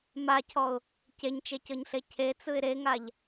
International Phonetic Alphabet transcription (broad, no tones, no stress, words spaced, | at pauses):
macʰɔʊ̯ | ceɲt͡ʃecɤɲɬe cʰet͡sɯɪ̯ ɾeŋaʎ